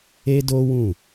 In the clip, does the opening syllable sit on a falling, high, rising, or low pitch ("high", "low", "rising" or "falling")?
high